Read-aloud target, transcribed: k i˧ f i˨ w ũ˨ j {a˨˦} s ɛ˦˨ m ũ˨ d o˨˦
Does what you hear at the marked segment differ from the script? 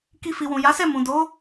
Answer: no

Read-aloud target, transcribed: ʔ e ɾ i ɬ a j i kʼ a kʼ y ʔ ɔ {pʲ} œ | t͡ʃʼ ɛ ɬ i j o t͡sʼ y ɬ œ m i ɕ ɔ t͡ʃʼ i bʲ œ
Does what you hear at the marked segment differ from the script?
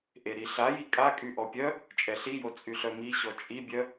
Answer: no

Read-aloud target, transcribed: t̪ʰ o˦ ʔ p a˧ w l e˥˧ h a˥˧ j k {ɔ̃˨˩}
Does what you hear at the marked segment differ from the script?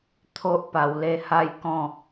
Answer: yes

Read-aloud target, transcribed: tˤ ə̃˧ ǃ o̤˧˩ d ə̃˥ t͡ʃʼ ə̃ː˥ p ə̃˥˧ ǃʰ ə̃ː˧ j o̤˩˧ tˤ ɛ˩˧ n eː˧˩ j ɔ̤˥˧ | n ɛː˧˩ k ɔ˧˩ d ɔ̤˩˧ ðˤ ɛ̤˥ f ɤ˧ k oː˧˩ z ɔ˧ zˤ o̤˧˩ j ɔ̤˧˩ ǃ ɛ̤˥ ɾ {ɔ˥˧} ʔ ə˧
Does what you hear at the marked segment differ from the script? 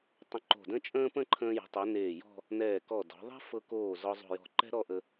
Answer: no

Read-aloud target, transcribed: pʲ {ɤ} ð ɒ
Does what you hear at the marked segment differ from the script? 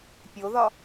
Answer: yes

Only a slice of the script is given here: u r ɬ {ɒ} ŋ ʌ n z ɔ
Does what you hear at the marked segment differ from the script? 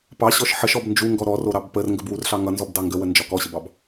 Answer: yes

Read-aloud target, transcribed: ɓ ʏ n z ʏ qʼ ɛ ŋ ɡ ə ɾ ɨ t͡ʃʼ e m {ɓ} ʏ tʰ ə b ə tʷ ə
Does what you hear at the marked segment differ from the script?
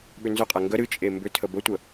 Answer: yes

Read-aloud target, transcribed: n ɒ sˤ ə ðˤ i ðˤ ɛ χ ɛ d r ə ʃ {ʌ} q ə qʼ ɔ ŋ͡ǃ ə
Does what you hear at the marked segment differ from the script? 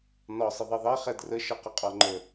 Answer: no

